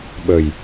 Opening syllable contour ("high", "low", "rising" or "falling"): low